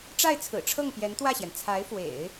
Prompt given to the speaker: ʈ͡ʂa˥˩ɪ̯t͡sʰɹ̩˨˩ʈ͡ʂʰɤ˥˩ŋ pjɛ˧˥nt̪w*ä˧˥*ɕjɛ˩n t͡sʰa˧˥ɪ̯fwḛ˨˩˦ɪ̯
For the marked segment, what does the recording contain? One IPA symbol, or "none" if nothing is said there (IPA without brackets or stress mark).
ä˥˩